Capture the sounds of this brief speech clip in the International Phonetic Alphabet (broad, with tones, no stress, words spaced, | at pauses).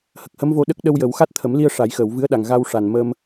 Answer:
hə˨˩k̚hə˧˥mvo˧ɗə˦˥k̚ ɗə˧wjə˨˩˦wxa˦˥t̚ t̪ʰə˨˩˦mli˧ə̯ ʂa˨˩˦jxəː˨˩˨wvɨ˧˥ə̯ɗa˨˩ŋ ɣa˧wʂa˨˩nmə˧m